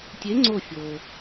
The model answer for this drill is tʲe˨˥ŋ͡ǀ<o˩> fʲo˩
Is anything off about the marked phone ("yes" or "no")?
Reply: yes